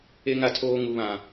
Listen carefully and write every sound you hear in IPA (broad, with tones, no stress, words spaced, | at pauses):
e˦ŋa˦tʰoː˦ ŋu˦βã˦